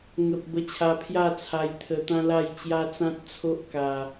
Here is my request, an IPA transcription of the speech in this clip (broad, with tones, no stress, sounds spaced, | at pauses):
ŋ ə˨ p̚ b ə˧ t͡ɕʰ a˧ pʰ j a˥˧ t͡sʰ a˧ j t̪ʰ ə˧ t̪ ã˦ l a˥˧ j t͡ɕ j a˦ t͡s ã˦ t̚ t͡sʰ o˦ ʔ k a˧